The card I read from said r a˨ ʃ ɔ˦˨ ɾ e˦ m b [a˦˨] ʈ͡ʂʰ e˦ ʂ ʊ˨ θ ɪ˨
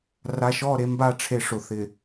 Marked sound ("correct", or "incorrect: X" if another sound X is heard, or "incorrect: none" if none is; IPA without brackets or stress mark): correct